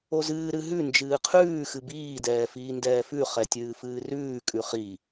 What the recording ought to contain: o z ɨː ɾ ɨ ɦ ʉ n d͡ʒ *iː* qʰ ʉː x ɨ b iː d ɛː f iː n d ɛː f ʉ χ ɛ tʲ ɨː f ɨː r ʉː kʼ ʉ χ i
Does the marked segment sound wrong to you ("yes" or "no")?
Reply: yes